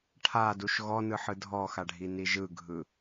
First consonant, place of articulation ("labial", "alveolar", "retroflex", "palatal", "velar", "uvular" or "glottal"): retroflex